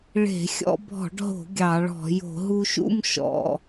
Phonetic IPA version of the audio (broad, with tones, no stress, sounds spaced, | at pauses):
ɭ e̤˧˩˧ xʲ ɔ̰˧ bʱ ɔ̤˧˩˧ ɖ ɦ o̤˧˩˧ ɡʲ ɑ˧˩˧ ɭ ɔ̤˧˩˧ j o̤˧˩˧ ɦ u˧ ʃ ṵ˥˨ m ʃ ɔ̰˧